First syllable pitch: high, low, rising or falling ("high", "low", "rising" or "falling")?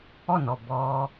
falling